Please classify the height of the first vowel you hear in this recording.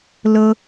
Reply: mid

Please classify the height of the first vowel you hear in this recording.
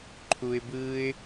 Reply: high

